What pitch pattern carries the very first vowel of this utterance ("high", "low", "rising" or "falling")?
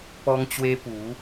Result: high